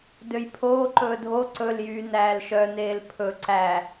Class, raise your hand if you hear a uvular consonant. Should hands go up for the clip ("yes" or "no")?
no